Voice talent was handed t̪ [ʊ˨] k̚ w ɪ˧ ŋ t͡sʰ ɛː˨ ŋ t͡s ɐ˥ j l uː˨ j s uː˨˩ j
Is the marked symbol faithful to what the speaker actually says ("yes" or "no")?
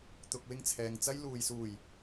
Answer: yes